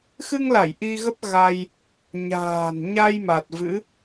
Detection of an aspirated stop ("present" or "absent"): absent